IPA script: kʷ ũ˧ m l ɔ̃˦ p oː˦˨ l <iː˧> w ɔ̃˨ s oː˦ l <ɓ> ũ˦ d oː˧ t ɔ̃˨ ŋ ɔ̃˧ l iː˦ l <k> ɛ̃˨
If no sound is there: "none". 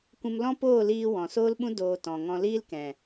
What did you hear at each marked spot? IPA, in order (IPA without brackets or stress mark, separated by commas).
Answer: iː˧, ɓ, k